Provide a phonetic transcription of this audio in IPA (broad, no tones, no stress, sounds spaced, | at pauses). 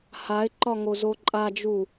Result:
h a ɪ̯ ǃ ɒ ŋ o z o ǃʼ a d͡ʒ u